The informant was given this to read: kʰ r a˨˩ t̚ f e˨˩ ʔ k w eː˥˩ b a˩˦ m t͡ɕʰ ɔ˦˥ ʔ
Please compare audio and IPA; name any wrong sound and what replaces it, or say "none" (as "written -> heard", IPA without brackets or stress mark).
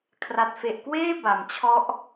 none